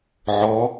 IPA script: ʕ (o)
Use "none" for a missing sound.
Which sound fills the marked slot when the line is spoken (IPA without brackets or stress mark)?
ɔ